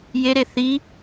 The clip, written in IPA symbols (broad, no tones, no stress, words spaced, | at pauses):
jeɾe θi